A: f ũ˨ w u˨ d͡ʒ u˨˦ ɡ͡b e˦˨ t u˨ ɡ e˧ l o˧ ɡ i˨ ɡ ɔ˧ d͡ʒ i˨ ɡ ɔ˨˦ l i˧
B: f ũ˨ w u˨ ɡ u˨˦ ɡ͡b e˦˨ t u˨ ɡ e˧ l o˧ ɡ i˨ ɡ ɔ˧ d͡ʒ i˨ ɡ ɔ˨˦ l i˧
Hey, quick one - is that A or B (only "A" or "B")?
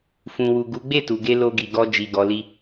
B